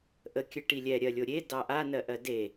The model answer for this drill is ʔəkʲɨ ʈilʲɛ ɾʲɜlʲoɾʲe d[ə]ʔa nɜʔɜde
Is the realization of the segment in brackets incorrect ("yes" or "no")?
yes